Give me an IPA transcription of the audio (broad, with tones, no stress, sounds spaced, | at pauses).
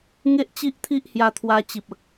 ŋ e˦ ʔ t͡ɕ i˦ ʔ t̪ʰ i˦ ʔ h j a˧ t̪ʰ w a˧ t͡ɕ i˨ p̚ ə˨ k̚